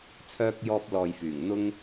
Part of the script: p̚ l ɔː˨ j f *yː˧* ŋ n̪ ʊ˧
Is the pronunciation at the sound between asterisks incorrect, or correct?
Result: incorrect: yː˨˩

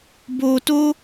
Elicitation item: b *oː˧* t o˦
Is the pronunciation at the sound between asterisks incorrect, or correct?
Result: correct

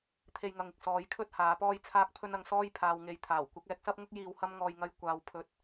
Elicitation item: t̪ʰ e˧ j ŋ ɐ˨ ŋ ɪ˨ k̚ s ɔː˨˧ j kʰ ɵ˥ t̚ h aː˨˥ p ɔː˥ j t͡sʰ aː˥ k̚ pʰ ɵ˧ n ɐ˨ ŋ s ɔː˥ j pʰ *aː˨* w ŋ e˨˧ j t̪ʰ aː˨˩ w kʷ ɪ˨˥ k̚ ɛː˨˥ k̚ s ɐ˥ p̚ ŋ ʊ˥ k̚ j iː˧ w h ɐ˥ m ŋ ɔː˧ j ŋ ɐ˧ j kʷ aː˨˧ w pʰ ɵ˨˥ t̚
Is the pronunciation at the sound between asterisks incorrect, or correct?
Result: correct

